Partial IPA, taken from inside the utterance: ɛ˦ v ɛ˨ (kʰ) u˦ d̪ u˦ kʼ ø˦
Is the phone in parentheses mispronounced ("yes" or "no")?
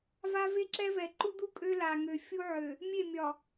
yes